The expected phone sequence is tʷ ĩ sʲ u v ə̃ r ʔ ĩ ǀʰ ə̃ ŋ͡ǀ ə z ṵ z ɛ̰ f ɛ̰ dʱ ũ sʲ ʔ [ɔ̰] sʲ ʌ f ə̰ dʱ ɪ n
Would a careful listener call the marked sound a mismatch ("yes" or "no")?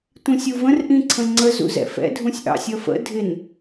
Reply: yes